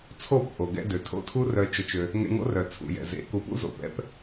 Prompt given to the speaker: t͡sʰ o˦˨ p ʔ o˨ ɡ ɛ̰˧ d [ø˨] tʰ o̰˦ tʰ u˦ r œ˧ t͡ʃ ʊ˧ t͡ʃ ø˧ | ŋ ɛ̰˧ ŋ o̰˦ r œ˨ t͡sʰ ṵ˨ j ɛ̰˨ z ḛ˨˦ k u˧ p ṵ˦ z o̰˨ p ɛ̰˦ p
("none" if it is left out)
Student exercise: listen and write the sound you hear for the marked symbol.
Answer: ø˨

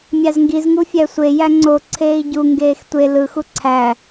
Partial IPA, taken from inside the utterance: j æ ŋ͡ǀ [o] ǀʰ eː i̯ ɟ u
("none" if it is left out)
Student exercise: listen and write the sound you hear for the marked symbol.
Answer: o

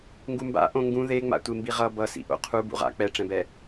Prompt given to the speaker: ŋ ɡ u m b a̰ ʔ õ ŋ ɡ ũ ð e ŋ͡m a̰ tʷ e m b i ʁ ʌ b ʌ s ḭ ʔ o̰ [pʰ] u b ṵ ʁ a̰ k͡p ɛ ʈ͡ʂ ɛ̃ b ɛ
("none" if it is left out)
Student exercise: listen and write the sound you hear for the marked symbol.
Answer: qʰ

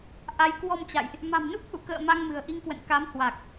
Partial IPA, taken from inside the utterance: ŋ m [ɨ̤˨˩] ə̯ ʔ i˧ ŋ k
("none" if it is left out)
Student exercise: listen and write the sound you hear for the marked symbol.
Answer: ɨ̤˨˩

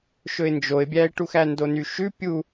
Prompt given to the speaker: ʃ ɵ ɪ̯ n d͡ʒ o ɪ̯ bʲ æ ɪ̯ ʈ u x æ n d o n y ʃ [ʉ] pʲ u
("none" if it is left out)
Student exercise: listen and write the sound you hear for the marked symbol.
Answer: ʉ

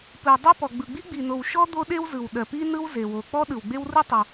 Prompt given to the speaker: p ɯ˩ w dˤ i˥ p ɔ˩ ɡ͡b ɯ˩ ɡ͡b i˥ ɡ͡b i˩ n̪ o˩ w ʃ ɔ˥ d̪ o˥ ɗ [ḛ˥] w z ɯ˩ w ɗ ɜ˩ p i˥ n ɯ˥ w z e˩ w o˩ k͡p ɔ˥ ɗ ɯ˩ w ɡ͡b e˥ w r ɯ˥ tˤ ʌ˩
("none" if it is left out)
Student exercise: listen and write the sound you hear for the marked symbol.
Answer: e˥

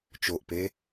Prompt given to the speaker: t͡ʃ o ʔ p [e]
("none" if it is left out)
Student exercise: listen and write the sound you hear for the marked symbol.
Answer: e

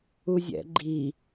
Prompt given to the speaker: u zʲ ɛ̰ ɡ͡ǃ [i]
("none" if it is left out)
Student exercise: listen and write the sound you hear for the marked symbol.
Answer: i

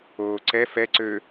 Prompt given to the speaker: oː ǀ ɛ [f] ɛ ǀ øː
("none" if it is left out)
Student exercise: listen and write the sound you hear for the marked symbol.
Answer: f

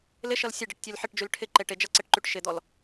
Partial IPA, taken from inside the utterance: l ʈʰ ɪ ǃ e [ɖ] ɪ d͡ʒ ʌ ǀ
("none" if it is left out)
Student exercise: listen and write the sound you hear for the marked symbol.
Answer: ʈ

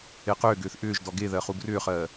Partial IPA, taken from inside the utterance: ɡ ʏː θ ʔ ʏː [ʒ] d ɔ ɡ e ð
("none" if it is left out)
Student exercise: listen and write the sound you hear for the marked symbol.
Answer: ʒ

